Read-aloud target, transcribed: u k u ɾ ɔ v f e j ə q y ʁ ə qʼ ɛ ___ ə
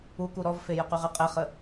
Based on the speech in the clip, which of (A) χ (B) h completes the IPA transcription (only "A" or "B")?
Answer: A